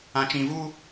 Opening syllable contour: low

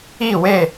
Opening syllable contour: falling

